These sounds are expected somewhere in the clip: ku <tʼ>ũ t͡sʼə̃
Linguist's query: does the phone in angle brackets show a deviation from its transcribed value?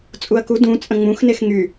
yes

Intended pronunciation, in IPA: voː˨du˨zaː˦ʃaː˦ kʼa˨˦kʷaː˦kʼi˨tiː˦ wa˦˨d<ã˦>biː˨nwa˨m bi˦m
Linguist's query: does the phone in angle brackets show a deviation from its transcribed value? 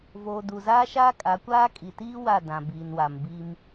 yes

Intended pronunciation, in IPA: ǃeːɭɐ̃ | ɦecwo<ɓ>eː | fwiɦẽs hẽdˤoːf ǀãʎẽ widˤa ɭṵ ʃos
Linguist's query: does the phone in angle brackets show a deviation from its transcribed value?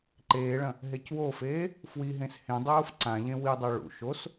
yes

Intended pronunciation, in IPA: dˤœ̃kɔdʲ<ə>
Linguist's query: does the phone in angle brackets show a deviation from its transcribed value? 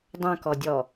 yes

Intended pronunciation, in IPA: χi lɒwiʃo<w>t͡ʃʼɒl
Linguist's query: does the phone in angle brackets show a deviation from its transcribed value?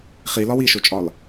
yes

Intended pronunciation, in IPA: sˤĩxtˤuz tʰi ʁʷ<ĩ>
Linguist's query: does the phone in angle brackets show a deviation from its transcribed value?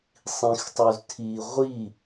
yes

